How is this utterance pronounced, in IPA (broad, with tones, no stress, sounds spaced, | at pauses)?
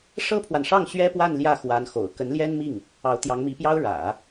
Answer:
ʂ ɤ˥ pʰ w a˨ n ʂ ɑ˥˩ ŋ ɕ ɥ ɛ˥ p w a˥˧ n l j ä˥˩ x w a˧˥ n x o̰˨˩ ʊ̯ k ə˧˥ n l j ɛ˥ n m i˥˩ ŋ | ɑ˧˥ ʊ̯ t̪ j ɑ˧˥ ŋ m i˧˥ p j ɑ˥ ʊ̯ ɻ ä̰˨˩˦